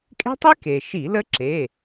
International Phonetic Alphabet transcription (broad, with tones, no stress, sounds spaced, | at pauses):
kʼ e̤˦˥ tˤ i˦˥ k e˩ ʃ i˧˩˧ l ə˦˥ ǁ e˩˧˩